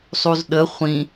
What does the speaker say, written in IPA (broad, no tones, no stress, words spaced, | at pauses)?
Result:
sˤuzɗə χʷĩ